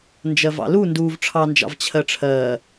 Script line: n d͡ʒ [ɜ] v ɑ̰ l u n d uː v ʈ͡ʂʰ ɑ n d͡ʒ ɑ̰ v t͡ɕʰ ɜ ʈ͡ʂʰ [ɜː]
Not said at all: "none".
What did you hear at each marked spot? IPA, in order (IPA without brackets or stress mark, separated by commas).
ɜ, ɜː